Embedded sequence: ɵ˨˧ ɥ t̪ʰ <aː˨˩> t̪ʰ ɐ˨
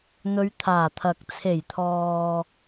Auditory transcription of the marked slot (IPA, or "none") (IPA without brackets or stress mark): aː˨˩